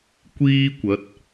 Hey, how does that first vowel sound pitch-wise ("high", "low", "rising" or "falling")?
high